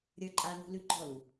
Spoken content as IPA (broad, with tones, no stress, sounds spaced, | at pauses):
ɾʲ ə˞˦ ǃʼ a˦ n ṳ˦ l ʉ˦ ɡ͡ǃ ɔ˦˨ l u˨